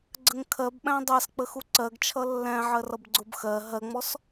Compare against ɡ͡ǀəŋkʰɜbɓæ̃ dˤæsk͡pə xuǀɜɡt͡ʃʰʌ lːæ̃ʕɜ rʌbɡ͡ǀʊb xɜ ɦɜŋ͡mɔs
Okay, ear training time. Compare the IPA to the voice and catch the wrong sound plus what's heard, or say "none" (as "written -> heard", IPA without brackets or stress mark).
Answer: none